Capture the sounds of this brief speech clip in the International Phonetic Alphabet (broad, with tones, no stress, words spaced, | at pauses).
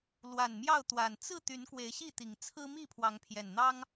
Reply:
lwa˨˩nmjɑ˥˨ʊ̯t̪wa˨˩n t͡sɹ̩˥˨ t̪y˨˦nkwe˨˦ɪ̯ɕi˥˨t̪i˨˩ŋ t͡sʰɹ̩˦mi˥˨ pʰwɑ˨˦ŋpʰjɛ˨˩nn̪ɑ˦ŋ